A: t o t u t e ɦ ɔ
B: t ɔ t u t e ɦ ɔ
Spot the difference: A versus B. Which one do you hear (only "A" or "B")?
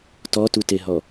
B